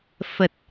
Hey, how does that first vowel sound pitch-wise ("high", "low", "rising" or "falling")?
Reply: low